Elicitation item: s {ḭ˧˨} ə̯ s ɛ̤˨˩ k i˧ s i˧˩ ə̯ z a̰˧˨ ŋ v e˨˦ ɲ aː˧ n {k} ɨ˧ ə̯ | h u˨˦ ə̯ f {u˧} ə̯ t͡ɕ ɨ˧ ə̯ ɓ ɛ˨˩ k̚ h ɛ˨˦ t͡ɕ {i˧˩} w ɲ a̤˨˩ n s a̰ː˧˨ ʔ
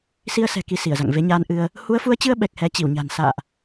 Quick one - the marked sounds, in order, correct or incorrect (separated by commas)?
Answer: incorrect, incorrect, incorrect, correct